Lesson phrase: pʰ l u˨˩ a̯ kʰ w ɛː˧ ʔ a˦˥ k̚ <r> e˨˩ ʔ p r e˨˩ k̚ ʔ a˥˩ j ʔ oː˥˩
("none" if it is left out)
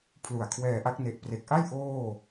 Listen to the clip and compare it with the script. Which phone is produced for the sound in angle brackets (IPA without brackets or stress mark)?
n